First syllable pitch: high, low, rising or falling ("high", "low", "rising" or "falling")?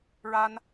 high